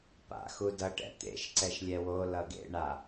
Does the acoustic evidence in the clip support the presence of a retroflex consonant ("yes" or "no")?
yes